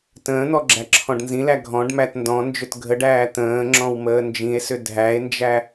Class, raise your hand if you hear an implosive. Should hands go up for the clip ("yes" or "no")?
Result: no